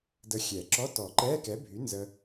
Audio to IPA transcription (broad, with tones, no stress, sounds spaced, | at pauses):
d ə˧ xʲ ɛ˨˩˦ ǁ ɔ˧˥˧ t ɔ˨˩˦ ǃ ɛː˧˥˧ k ɛ˨˥ bʱ y˨˥ n z ə˧